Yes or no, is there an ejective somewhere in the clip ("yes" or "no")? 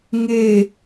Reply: no